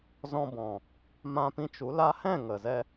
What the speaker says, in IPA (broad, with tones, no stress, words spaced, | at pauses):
zɔ̃˧bɔ̃˨ | mã˧pĩ˧t͡ʃu˨˦ la˦ hɛ̃˦˨ ŋə˨zɛ˧